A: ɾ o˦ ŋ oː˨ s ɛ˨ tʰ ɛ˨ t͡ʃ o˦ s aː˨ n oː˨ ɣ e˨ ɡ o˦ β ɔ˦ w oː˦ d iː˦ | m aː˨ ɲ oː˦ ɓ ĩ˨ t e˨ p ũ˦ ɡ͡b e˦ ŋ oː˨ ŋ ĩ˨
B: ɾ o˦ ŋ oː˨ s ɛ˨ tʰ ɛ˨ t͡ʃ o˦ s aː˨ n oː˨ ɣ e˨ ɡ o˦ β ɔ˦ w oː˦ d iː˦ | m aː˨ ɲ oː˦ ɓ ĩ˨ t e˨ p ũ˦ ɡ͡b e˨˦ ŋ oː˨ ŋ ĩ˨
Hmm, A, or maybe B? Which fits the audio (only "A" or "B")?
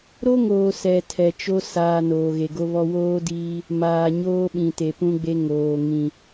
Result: A